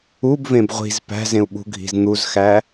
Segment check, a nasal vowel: present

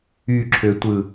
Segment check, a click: present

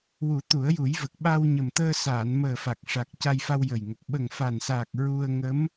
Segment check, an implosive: present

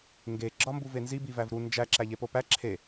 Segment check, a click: present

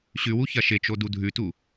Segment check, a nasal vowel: absent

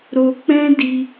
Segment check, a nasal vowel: present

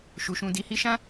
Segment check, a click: absent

